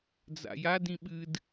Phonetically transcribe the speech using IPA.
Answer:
d͡za̰jad ĩɓɨd

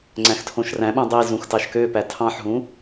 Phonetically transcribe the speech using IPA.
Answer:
ŋ͡ǀæ̃xtʰõʃræ̃ɓũ dˤizũx tɑʃkøpæ tʰɑ̃ħɦũ

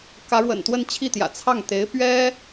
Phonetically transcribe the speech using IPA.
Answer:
kä˧˥ɻwə̰˨˩n t̪wə˥˧nt͡ɕʰi˥˩t̪jä̰˨˩ t͡sʰɑ˥˩ŋt̪e˧˥ɪ̯ pɥɛ˥

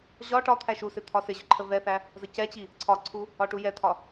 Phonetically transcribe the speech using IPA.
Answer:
ʑɒ ʈɒt̪ʰæ ʃusɪ t̪ʰɒsɪʑʊ ǃʰəvɛθæ | zəcɛt͡ɕi | ǀʰɒǀʰu | ɒʈujɛt̪ʰɒ

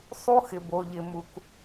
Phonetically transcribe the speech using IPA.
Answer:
sˤu˦xɪ˨bo˨ʎɪ˨ mu˨k

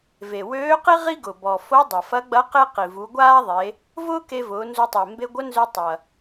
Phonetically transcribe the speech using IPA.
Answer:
ve˩wøː˧˥qi˥ ʁi˥ɡʊ˩ bɔ˩ fo˧˥ dˤɐ˩fɐ˧˥ɡ͡bɐ˧˥ qe˥qi˩ vu˩˧ɡʷaː˥ðˤe˩˧ | vʊː˥ke˧vʊː˩˧ nzu˧tˤəː˩ mbe˧ɡʷə˧˥nzø˧ tˤɐ˩

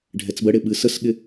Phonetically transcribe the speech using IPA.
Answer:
ɖʱɛt͡sbəɽɪ ɓɨsəsɠɪ

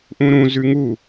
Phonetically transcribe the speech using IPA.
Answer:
ʔũɾũ zʉŋu

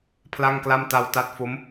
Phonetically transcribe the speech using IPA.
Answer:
pʰla˥˩ŋkla˥˩m ta˧wta˦˥t̚fo˦˥m

